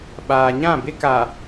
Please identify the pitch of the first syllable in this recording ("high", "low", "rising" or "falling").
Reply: low